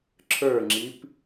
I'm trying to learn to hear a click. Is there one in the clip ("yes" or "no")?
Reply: yes